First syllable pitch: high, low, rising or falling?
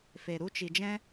low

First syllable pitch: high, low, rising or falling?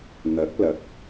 rising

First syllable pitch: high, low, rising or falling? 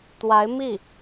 rising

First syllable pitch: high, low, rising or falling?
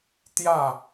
falling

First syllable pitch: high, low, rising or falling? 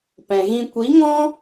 low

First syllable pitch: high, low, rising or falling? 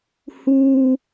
high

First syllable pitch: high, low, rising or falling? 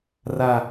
low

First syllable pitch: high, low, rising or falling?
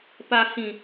low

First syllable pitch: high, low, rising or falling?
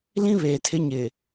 high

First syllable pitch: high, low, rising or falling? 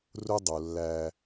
high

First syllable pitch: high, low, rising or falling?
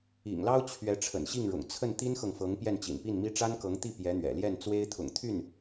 low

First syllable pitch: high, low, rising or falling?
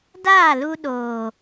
falling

